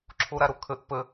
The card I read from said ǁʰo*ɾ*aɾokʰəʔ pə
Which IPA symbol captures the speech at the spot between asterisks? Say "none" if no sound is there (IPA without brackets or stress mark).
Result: ɾ